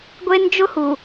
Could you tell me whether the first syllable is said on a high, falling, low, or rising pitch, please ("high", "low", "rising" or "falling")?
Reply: high